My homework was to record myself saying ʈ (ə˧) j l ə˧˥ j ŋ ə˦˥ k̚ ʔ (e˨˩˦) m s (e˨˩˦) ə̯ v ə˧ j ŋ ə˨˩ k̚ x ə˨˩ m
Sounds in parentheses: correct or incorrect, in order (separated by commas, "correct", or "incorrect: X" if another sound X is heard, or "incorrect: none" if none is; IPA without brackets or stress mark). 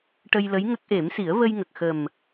correct, correct, incorrect: i˨˩˦